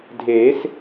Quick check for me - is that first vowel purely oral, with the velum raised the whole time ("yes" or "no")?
yes